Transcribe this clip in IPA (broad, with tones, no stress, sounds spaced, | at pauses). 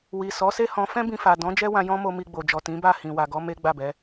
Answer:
w i˨ s ɔ˨˦ s e˦ h ɔ̃˧ f ɛ̃˦ b ĩ˧ f a˨ d ɔ̃˨˦ d͡ʒ ɛ˦ w ã˧ j ɔ̃˦ m o˧ m i˧ ɡ͡b o˨ d͡ʒ ɔ˨ t ĩ˨˦ b a˦˨ h ĩ˨ w a˨ ɡ ɔ˨˦ m e˦ ɡ͡b a˦˨ b ɛ˨˦